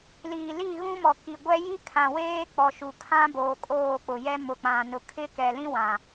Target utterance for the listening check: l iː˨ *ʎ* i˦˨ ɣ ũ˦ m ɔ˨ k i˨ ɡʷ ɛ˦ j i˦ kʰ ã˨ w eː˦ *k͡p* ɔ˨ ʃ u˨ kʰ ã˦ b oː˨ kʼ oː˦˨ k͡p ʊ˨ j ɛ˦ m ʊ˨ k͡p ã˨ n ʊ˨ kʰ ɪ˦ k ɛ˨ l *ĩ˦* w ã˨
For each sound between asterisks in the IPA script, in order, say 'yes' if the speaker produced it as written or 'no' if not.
no, yes, yes

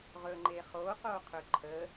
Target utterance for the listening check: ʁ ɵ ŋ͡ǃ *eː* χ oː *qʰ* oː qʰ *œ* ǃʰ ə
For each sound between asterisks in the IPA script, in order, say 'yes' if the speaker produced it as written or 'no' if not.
yes, no, no

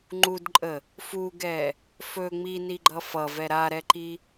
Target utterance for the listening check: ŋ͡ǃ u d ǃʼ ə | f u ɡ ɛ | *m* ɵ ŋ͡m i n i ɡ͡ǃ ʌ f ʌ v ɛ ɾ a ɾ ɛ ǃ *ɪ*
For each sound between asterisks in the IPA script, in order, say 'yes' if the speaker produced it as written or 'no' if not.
no, no

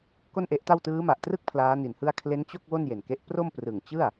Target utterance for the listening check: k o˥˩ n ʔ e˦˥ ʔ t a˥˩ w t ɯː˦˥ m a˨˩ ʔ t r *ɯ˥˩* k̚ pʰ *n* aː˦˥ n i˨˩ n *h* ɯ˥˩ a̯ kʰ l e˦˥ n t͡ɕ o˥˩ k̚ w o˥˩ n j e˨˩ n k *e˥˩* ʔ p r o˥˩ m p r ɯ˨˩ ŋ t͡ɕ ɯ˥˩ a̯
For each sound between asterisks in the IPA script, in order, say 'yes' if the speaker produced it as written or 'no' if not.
yes, no, yes, no

